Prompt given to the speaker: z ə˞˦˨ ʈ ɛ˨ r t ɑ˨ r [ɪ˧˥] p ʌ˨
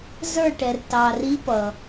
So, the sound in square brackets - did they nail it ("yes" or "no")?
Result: no